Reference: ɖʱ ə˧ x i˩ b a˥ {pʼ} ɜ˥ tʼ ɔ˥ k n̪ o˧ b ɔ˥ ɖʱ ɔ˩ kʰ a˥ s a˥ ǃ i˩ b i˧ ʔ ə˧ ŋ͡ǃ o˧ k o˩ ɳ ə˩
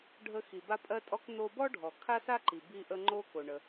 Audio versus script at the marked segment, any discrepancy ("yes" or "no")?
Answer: no